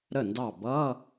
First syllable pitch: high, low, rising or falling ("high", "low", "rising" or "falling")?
falling